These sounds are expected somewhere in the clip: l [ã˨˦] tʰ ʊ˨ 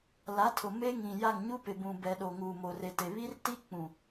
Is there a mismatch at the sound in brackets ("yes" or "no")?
yes